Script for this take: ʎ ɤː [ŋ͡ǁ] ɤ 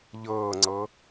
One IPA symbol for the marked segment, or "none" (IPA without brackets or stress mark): ŋ͡ǀ